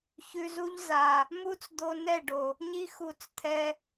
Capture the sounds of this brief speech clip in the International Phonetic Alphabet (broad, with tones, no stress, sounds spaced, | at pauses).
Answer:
ç ʉ˧ z u˦ ʎ z a˨ | m u˦ t͡s d̪ o˧ n ɛ˦˨ ɖ o˨ | ɲ i˦ x u˧ t͡s t̪ʰ ɛ˧